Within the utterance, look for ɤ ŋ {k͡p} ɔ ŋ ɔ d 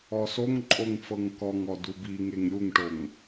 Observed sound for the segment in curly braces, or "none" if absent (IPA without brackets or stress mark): k